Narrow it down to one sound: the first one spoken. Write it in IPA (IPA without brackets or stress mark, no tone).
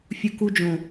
fʲ